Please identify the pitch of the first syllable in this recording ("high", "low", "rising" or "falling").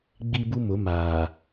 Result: high